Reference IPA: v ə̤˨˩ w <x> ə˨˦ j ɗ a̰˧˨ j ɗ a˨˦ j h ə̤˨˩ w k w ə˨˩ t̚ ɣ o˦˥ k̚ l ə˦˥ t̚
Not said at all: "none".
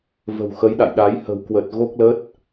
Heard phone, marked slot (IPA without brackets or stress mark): x